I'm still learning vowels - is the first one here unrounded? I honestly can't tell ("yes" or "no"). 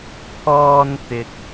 no